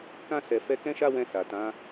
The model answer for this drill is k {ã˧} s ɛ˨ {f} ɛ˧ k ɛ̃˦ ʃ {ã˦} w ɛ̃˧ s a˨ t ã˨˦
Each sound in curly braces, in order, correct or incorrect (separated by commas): correct, correct, incorrect